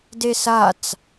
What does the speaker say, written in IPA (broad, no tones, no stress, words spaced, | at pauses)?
desat͡s